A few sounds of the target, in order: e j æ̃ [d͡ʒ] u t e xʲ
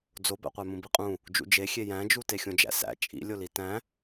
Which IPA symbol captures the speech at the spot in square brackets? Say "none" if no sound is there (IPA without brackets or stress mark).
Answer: d͡ʒ